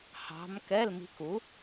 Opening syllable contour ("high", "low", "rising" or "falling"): rising